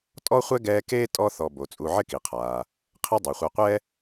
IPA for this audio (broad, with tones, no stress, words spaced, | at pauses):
tʼɔ˥χʷɛ˥ ɡɛː˦keː˥tʼɔ˦ θɔ˨bo˩ t͡sʼu˨ʕɪ˦ki˩qʰaː˩ | qʰi˦dˤu˩χʷɛ˨qʷɛ˥